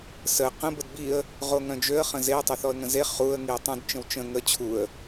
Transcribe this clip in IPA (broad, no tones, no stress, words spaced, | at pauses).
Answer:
sə qə̃ bədbiə̯ | ʁoŋœ̃d͡ʒøə̯ χə̃zeə̯ tˤɛθɔə̯ŋə̃ze χuə̯ ŋiə̯tˤũd t͡ʃə̃wt͡ʃə̃ ŋə t͡ɕʰuə̯